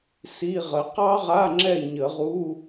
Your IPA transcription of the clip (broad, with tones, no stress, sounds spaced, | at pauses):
s i˧˥˧ ʁ ə˨˦ q ɑ˥ ʁ a˧˥˧ ŋ͡ǁ ɛ˦˨ ɲ ə˨˩˦ ʁ u˧˥˧